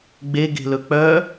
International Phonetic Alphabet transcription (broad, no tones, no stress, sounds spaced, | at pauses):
ɡ͡b e ɡ e̤ l ɵ k͡p œ